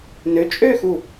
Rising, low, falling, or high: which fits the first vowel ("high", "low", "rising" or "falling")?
rising